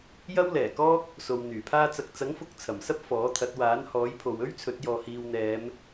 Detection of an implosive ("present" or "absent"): absent